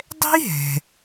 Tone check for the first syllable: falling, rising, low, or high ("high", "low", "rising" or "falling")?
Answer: high